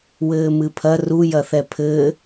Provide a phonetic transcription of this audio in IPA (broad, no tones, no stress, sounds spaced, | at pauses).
w ɘː m ɨ pʰ ɐ r u j ɐ θ ɛ pʰ ɘː